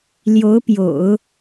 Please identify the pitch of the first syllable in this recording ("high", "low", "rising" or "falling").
rising